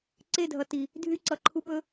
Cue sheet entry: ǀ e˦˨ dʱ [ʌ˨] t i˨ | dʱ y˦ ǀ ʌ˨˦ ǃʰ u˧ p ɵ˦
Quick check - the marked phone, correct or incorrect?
correct